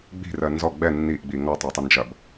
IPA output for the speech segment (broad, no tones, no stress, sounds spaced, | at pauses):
ɡ͡b i̤ r ɜ n z ɔ ɡ͡b ɛ nː i ʔ ɡ͡b i ŋ ɔ tˤ ɛ tˤ ɐ n d͡ʒ ɐ b